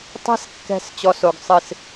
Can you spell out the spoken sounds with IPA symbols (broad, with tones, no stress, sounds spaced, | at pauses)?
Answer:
tˤ e̤˦ s kː ɛ̤˦˨ s t͡ɕ ɔ˧ s o˨ ɡ sˤ ɨ˨ s